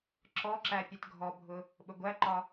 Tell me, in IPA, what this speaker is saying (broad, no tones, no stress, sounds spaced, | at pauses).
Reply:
ǁ ɔ ǁ æ pʲ ə t ɡʱ ɔ bʱ ʊ | ɓ ʊ ɡʷ æ ǃ ɒ